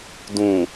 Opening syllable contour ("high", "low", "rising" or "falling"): low